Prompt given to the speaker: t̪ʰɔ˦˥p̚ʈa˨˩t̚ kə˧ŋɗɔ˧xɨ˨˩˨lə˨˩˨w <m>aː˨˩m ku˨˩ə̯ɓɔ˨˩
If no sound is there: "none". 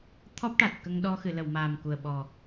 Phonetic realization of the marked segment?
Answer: m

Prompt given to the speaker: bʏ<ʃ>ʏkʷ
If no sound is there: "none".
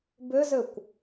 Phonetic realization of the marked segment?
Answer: z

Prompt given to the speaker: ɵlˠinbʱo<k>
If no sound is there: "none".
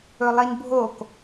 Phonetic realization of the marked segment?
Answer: k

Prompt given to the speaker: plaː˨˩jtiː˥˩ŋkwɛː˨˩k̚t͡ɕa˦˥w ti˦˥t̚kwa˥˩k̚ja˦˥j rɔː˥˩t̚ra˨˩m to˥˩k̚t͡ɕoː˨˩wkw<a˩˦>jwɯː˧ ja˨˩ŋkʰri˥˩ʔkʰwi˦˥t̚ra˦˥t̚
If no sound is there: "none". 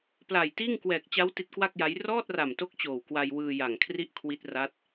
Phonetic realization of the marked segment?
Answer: a˧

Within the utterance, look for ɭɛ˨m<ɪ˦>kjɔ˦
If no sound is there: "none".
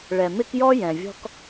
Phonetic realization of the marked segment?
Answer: ɪ˦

